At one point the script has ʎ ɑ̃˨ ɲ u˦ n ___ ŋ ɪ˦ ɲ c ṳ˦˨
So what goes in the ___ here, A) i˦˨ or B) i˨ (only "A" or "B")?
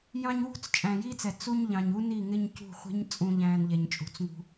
A